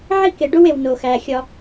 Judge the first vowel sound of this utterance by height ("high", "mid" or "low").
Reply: high